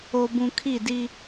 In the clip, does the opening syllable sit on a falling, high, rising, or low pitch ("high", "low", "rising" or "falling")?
low